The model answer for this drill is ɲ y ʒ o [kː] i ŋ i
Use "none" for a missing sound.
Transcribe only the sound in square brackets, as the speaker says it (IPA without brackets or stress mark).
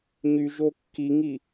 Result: kː